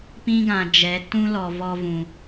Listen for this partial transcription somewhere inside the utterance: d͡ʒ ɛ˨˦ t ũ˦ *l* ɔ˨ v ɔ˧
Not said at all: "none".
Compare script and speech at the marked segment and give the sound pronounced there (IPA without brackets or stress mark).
l